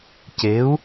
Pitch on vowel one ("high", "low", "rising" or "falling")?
rising